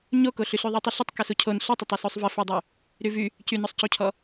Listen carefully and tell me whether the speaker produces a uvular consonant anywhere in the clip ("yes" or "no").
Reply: no